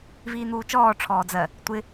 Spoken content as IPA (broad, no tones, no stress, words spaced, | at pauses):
viːn̪uːt͡ʃɔː ʈ͡ʂʰɔːd͡zɜ | tʷɪ